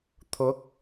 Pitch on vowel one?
rising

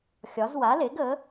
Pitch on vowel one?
rising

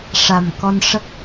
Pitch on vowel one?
low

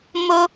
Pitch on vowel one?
high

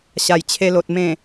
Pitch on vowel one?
low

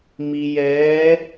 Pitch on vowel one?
low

